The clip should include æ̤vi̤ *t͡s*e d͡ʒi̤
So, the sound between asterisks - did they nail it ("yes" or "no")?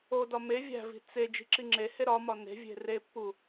yes